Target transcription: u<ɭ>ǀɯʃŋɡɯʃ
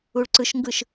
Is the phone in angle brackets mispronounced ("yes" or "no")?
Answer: no